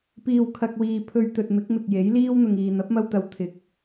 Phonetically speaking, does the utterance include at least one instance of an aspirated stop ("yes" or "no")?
yes